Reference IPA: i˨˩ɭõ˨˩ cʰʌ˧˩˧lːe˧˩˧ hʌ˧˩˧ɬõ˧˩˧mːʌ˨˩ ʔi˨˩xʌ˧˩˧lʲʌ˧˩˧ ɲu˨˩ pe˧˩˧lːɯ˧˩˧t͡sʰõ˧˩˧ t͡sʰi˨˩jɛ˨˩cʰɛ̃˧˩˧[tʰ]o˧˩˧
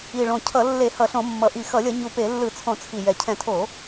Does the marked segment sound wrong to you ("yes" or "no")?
no